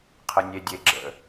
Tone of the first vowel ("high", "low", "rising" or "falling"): low